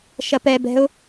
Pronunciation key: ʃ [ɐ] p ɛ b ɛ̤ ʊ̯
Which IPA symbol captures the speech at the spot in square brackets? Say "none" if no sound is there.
ɐ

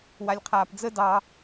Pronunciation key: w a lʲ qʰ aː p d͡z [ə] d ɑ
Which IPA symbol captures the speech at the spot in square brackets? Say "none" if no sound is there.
ə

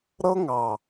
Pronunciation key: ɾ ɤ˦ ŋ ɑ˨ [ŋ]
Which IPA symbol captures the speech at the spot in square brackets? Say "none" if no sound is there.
none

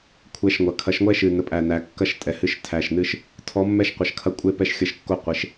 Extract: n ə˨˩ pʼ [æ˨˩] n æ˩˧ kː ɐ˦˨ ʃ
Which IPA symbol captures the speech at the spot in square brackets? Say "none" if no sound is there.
æ˨˩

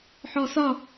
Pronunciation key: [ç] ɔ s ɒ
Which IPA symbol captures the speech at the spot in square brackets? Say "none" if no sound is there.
ħ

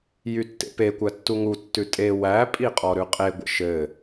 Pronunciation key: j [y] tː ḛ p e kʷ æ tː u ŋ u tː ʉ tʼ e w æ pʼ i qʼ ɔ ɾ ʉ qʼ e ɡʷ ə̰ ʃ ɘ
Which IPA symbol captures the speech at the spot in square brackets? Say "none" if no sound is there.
y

